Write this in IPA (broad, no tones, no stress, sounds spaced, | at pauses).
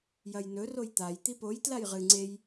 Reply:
j ɐ j n ɵ r o j t̪ a j t̪ i p o j t l a j ʁ ɨ ŋ͡ǀ e j